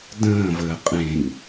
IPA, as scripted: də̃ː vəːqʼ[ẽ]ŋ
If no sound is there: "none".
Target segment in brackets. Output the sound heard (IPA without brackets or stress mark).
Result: ẽ